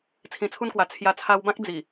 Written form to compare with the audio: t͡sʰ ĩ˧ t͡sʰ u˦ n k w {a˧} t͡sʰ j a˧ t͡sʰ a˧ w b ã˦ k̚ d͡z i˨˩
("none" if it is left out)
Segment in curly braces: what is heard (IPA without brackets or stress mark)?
a˧